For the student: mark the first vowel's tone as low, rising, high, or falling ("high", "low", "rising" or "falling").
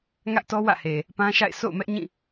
high